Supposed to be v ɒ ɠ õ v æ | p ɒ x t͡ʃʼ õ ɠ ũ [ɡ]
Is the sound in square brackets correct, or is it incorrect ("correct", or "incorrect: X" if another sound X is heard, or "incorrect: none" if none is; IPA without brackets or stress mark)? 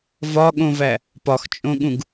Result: correct